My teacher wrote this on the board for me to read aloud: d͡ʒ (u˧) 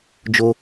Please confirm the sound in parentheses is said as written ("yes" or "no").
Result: no